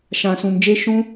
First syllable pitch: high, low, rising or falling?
low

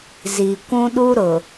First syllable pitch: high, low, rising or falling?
low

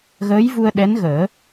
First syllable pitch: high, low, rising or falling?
rising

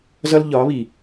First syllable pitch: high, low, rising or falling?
high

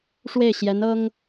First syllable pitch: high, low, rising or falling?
falling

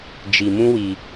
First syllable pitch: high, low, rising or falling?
low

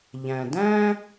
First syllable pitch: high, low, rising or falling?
low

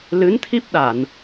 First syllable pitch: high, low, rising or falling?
rising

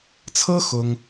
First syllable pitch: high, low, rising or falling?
high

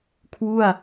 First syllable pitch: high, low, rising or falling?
falling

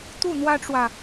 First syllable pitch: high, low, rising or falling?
falling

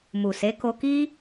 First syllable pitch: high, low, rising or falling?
low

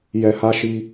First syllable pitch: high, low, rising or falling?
low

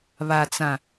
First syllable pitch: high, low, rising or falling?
low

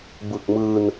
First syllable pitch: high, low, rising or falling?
low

